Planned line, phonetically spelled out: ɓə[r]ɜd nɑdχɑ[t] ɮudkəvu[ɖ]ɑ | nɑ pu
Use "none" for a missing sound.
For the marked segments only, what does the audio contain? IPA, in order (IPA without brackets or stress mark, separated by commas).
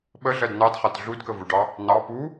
ɮ, t, ɖ